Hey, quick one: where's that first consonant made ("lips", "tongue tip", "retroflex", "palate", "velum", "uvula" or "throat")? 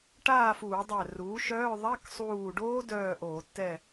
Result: retroflex